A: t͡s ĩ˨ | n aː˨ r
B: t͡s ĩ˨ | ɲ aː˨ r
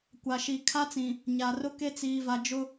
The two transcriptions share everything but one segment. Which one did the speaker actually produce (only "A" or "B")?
B